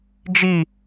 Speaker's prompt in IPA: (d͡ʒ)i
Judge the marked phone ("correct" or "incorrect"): correct